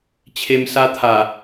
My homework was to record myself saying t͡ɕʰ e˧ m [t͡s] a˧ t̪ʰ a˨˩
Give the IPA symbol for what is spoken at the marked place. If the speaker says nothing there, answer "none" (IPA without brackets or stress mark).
s